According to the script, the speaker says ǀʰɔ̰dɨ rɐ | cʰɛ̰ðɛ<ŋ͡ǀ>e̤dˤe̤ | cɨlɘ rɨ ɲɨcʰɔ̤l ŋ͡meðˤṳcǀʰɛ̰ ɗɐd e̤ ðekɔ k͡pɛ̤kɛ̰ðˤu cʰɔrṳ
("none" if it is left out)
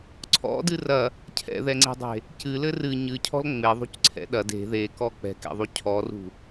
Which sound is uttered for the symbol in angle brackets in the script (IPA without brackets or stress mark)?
ŋ͡ǀ